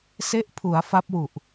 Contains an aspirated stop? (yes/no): yes